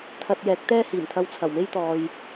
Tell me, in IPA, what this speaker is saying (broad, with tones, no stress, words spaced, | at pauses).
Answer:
t̪ʰɐ˧t̚jɛː˨˥k̚ t̪ɛː˥ hiː˨˩mt̪ʰɐ˧w t͡sʰɐ˨˩wme˥jt̪ɔː˨j